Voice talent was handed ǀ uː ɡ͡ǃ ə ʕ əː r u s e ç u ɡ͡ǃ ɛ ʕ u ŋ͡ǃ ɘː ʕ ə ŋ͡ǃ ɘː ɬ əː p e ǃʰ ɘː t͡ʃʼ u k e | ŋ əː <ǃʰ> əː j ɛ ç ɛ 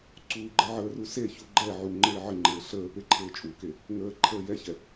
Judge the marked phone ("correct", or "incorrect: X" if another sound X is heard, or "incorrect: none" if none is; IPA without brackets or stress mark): correct